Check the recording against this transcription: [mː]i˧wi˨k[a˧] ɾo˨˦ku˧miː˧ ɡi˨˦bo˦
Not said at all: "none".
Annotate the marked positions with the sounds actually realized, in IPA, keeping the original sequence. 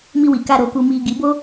m, a˧

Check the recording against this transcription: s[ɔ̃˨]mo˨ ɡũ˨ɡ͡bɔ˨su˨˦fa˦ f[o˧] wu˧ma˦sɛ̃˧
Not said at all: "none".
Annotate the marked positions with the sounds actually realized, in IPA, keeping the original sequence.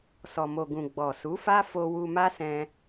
ɔ˨, o˧

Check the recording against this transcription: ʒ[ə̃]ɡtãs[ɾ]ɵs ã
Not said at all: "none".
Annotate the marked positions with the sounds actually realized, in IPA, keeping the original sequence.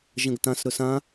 ə̃, ɾ

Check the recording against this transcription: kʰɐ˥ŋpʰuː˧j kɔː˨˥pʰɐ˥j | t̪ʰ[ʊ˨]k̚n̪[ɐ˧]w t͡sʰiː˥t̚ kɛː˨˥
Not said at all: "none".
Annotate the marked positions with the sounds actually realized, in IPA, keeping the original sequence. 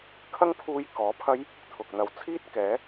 ʊ˨, ɐ˨˧

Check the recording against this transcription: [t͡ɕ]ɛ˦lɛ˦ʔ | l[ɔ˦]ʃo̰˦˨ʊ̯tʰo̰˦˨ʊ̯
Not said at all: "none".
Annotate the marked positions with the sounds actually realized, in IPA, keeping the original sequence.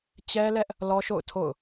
t͡ɕ, ɔ˦

